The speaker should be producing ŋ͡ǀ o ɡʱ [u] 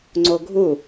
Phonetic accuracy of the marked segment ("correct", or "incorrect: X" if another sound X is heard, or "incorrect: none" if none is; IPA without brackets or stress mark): correct